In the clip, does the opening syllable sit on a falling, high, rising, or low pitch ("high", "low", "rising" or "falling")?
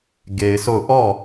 low